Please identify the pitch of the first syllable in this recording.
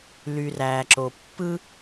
low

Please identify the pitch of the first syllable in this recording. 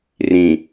low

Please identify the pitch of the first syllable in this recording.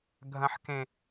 high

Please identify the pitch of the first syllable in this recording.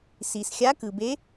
low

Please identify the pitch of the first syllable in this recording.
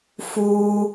high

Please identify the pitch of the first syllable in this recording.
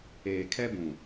low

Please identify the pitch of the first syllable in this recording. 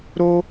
high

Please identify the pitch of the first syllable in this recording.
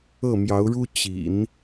falling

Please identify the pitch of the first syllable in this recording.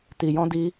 low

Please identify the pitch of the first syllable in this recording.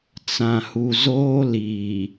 low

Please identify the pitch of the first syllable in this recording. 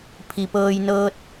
low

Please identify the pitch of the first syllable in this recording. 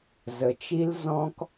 low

